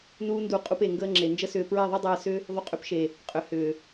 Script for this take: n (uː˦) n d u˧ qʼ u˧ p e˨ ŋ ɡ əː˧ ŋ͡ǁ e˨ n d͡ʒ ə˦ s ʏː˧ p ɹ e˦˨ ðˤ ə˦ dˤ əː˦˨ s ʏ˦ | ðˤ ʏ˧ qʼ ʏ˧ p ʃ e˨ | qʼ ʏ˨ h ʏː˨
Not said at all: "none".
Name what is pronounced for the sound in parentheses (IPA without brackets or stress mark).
uː˦